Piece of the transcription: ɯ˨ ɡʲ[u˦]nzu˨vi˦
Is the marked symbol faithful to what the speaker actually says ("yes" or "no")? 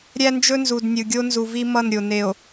no